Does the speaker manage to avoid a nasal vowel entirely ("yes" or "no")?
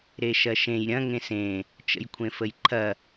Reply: no